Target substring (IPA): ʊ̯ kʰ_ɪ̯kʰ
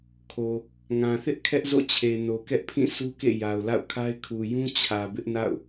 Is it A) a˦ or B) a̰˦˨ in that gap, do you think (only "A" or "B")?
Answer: A